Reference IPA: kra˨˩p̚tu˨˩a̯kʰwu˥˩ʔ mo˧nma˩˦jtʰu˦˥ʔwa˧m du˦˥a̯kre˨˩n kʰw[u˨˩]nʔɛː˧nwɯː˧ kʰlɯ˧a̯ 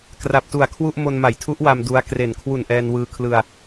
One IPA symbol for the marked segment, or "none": u˨˩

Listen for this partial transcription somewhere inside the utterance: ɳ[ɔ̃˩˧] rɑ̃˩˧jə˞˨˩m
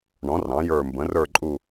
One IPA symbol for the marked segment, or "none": ɔ̃˩˧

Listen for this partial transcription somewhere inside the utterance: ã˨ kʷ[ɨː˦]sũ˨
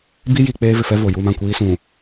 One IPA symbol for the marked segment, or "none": iː˦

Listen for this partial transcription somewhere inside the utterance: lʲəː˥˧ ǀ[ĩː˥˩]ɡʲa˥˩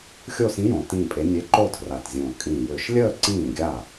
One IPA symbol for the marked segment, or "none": ĩː˥˩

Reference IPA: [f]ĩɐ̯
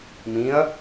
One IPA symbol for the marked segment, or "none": m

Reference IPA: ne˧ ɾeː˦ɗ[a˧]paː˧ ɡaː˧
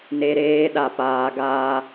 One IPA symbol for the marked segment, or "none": a˧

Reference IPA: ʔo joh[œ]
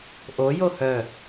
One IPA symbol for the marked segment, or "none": œ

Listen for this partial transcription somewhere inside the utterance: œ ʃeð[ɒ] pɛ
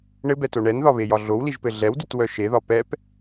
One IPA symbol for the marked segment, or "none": ɒ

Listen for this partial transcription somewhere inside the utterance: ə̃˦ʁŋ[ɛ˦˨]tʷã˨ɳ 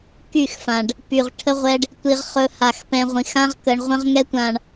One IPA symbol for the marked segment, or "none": ɛ˦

